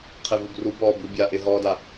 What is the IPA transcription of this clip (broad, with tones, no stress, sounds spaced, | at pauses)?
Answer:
qʰ ɪ˨ v u˨ b r u˨˦ b ɔː˨ b u˨ bʲ a˨ ʔ ɪ˨ ɦ ɔː˨ d a˨